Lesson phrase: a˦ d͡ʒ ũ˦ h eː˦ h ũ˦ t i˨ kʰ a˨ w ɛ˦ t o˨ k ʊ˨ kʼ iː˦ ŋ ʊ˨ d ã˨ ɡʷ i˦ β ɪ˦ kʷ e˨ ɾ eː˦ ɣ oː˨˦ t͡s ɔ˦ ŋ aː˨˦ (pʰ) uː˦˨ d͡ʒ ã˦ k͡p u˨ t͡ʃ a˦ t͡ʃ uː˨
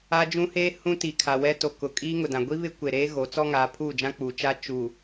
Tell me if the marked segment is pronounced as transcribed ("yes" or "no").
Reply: yes